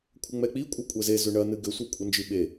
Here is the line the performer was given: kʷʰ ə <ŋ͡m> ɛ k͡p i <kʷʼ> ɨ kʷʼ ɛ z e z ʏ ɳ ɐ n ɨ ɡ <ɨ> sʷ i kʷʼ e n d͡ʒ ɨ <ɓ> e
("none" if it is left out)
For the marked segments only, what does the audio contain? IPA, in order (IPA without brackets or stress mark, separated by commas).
ŋ͡m, kʷʼ, ʏ, ɓ